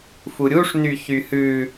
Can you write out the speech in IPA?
fuɾʲuʂ nyçyhʉ

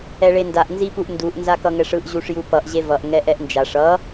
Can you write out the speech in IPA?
ɛɭendaʔ nzipuʔnduʔ nzakʌŋɛʂɯʔ ʑuʂjupʌʔ ʑevʌʔ ŋɛʔɛʔnd͡ʒaʂ ʌ

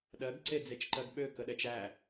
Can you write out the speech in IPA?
ɗɜɡǀed͡zet͡ʃǃɜɡ ɓøkəɗɛt͡ʃ æ

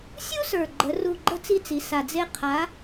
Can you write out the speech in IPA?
sʲu˥sə˞˨˩ɡ͡ǃə˩˧ ru˦˨ɡ͡ǃə˥t͡si˥t͡si˩˧ sa˨˩d͡ze˥ qʰa˨˥

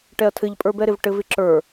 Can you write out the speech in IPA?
ʈɛɐ̯tʰɘʎpʼə˞bɛ ɾɪvʈɘvɪ ǁə˞

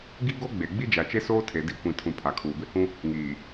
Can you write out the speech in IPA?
ɡi˦ɡo˦ɡ͡be˨ ɡ͡bi˦d͡ʒa˨t͡ʃe˦soː˦ tʰe˨di˨˦kʷĩ˨tʰũ˨ pʰa˨kʰuː˨bɪ˦hũ˦ | ŋiː˨

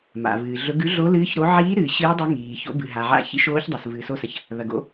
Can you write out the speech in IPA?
ma̰˩vɨː˩ɮɵ˨˦ɡ ʉ˨˦ɮo˨˦lɨː˨˦ç ɾo˨˦ ʕiː˨˦ɾɨː˩ ɕɨː˨˦dˤo˨˦ ŋiː˩ ço̰˨˦bɨ˩ ɦa˩ʕa̰˨˦ çḭ˨˦ ʃoː˨˦çdˤɐ˩s vɨː˩so˨˦sɐ˩ç | ðɐ˩ɡo̰˨˦

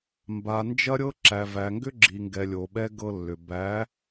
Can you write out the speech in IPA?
mba˨nd͡ʒɐ˦ɾʲɤ˦ǁæ˨ væ˨ŋɡʏ˦ ɡ͡ǁi˨ŋɡɛ˨lʲo˨ ɓɛ˦ ɡɤ˦lːʏ˨ bæ˨˦

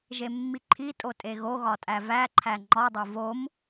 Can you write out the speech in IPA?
ʒemːiǃʰitʼo tʼeɣoɣɒ tʼævæǃʰæ ŋ͡ǃɒdˤo vom

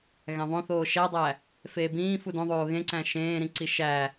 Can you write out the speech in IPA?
ɣæ̃ðˤõθoː ʃædˤæ | feːbĩː fudõðˤoː ɣẽǀæ̃ ʃẽːɾĩǀi ʃæ

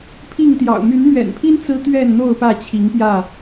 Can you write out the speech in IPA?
pʰi˥˨ŋt̪jɑ̰˨˩ʊ̯ my˨˦nmɥɛ̰˨˩npʰi˦n t͡sɹ̩˦t̪ɥɛ˥˨nn̪o˥˨ʊ̯ pä˥˨t͡ɕʰi˨˦ŋpjä˥˨

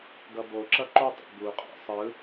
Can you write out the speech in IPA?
ɡʌboǁʌ ǃotˤo̰ buqʼɛ̰ sˤɯ

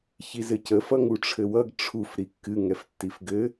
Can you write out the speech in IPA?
çizɘcə fʌŋuʈ͡ʂʰɘwʌɡ ʈ͡ʂʰuf ɾikːɨ ŋɛftːifɡɘ

